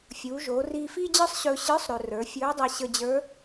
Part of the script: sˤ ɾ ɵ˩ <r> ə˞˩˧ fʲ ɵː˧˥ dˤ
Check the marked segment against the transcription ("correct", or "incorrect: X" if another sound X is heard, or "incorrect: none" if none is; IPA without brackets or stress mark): correct